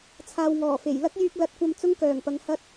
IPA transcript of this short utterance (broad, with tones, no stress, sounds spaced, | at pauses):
t͡sʰ aː˨ w ŋ ɔː˨˩ f e˨˩ j l ɐ˥ k̚ j yː˧ k̚ l ɐ˨˥ t̚ kʷ ɐ˧ m t͡s ʊ˥ ŋ k œː˨˩ ŋ p ɐ˨˧ ŋ h ɐ˥ t̚